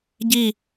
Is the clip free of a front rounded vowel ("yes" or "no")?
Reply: yes